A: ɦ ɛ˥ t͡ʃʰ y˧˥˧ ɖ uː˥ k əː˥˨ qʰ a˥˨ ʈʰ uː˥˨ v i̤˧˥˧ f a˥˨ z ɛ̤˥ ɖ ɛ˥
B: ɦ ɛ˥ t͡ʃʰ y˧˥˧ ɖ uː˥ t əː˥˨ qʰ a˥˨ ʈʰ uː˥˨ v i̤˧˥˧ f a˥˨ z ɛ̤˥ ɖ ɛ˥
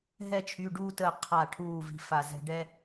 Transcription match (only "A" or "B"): B